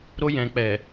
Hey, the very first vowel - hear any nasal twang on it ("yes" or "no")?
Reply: no